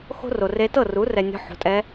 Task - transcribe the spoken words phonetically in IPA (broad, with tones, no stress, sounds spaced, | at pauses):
x o̤˥ r o˨ r e˧˥ t ɤ˥˩ r u˩˥ r ɛ˨ nʲ ɔ̤˧˥˧ ħ o̤˩˥ tʼ ɛ˧˥